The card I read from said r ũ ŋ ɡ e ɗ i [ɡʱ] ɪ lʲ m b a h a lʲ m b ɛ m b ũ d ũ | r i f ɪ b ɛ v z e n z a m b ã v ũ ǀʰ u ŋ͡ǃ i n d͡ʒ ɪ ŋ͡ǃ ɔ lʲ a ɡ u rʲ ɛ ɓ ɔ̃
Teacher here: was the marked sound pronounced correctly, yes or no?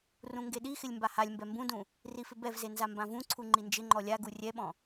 no